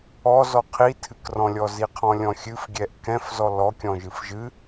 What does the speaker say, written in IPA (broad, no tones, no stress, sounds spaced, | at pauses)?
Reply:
ɔ z ɔ qʰ i tʰ ɨ k r ɔ̃ lʲ ɔ z i qʰ ɔ̃ lʲ ɔ̃ xʲ ɨ f ɡʲ ɛ ʔ k ɛ̃ f z ɔ l ɔ kʲ ɔ̃ ʒ ɨ f ʒ ɨ